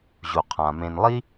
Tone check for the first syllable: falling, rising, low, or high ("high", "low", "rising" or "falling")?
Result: low